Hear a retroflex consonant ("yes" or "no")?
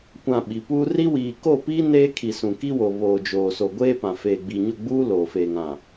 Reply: no